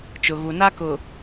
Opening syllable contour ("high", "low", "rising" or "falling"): low